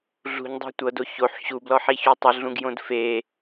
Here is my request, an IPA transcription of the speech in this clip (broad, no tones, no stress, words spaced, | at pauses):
ɮṳɲdˤe̤ tʷɤdo çoħ ɕublɔħiçu tˤɯɮũɡjõd fe